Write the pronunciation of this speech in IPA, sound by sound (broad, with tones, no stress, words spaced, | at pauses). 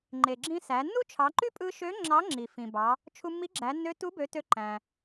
ŋ͡ǃe˩ɡ͡ǁĩ˧ sæ˩˧ nːu˥t͡ʃʰɑ˩˧ǃy˥ pʼɯ˧ʃø˧˥ ŋ͡ǁɑ˧˥ŋ͡ǁi˩ fĩ˩bɑ˩˧ | t͡ʃʰu˧mːi˧˥ɡ͡ǁæ˩˧nːø˧˥ tu˧˥bø˩˧ tø˧ǃæ̃˩